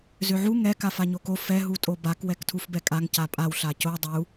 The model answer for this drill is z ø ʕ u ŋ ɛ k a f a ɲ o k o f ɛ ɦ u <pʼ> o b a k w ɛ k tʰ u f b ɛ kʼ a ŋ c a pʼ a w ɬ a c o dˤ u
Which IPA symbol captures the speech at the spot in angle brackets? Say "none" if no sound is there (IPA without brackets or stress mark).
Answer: tʼ